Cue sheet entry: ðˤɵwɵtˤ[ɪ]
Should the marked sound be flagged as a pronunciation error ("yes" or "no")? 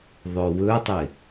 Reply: no